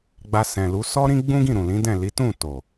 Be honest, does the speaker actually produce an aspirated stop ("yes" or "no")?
no